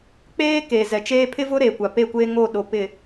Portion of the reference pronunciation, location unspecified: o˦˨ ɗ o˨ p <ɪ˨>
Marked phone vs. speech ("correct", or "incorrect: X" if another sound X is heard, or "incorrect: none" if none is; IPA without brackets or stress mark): correct